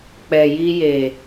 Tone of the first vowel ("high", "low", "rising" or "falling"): low